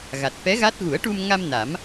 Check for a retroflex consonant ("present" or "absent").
present